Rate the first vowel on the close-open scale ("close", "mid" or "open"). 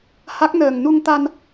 open